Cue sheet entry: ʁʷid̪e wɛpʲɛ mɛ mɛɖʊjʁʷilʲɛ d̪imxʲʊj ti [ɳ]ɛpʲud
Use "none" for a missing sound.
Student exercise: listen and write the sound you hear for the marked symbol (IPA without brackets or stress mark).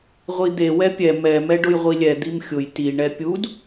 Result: ɳ